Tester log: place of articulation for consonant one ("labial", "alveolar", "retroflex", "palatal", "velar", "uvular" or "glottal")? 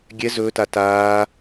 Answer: velar